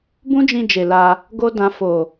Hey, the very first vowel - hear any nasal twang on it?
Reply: yes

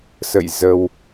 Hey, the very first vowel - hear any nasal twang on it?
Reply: no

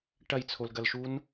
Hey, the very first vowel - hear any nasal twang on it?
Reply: no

